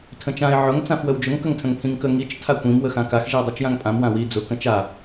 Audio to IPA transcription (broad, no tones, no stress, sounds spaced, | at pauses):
tʰ ə̃ t͡ʃ ã ɪ̯ ʕ ʊ ŋ t͡s ã f w ə w d͡ʒ ʊ ŋ k ə ŋ tʰ ə̃ ŋ pʰ ĩ ŋ k ə ŋ i t͡ʃ tʰ a kʷ ĩ m w ə x ã k a x ʒ i ʊ̯ dˤ i t͡ʃ j ã ŋ pʼ ã m w ã w i d͡z ʊ k ə̃ t͡ʃ a